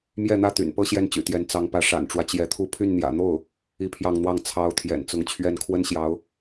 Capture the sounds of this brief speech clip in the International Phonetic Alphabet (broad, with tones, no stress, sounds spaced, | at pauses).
m j ɛ˥˧ n̪ ä˥˩ t̪ y̰˨˩ n p ɤ˥ ɕ j ɛ˥˩ n t͡ɕ y̰˨˩ t̪ j ɛ˧˥ n t͡s ɑ˧˥ ŋ p ä˧˥ ʂ a̰˨˩ n ʈ͡ʂ w ä˦ t͡ɕ j ɛ˧˥ t̪ʰ u˥˧ pʰ y˥˩ n n̪ j ä̰˨˩ n̪ o˥˩ ʊ̯ | i˥˧ pʰ j ɑ˥˧ ŋ n̪ w ɑ˥˩ ŋ t͡sʰ ɑ˧˥ ʊ̯ t̪ʰ j ɛ̰˨˩ n t͡s ʊ˧˥ ŋ t͡ɕʰ ɥ ɛ˥˩ n kʰ w ə˥ n ɕ j ɑ˧˥ ʊ̯